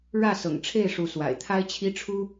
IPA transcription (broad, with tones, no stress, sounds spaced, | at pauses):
ɻ ä˥˨ s ɤ̰˨˩ ŋ ʈ͡ʂʰ e˥˨ ɪ̯ ʂ u˨˦ s w a̰˨˩ ɪ̯ t̪ʰ a˦ ɪ̯ t͡ɕʰ i˦ ʈ͡ʂʰ u˦